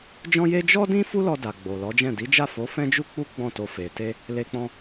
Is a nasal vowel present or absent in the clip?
present